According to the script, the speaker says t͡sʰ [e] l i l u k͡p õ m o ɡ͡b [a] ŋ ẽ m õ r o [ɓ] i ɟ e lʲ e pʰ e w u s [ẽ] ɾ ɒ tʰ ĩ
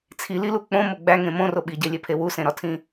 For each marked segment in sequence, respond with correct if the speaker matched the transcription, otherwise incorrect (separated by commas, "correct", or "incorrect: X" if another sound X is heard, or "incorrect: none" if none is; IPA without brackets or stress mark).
incorrect: i, incorrect: æ, correct, correct